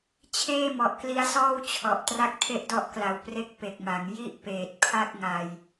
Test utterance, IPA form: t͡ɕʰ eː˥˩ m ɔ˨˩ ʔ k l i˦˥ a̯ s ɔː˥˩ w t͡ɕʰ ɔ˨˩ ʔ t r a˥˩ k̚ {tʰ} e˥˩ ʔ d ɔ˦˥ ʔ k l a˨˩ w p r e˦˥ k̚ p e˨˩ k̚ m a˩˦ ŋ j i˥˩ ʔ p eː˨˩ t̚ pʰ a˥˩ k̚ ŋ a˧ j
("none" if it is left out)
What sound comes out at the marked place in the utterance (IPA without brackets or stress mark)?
tʰ